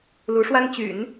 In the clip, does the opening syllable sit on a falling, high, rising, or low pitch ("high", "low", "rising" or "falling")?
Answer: rising